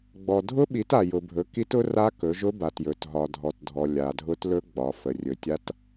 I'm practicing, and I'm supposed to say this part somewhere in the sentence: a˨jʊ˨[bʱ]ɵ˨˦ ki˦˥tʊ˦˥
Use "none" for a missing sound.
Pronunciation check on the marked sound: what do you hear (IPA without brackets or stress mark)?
bʱ